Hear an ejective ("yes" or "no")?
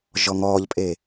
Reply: yes